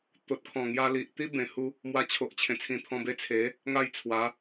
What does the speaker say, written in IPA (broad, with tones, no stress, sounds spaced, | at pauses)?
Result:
t̪ o˨ t̚ kʰ ɔ̃˨˩ ŋ j a˧ l i˨ ʔ t̪ i˦ b ẽ˨˩ h u˧ | m w a˧ t͡ɕʰ o˨ ʔ t͡ɕʰ ẽ˨˩ t͡sʰ ĩ˧ t̪ʰ ɔ̃˧ b e˧ t͡sʰ e˨˦ | ŋ a˥˧ j t͡sʰ w a˨˦